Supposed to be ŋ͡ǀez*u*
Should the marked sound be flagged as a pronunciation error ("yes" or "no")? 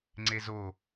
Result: yes